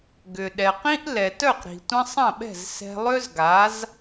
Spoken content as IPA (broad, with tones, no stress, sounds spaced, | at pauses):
ɡ ʏ˩ ɗ ɛ˩ q ĩ˥ ʔ l ɛ˩ t œ˥˩ q ɾ i̤˩ tʷ ə̃˧ sˤ ɐ̃˥˩ ɓ ɛ̤˥˩ z s ɛ̤˧ lˠ ø˥ z ɡ a˩˥ z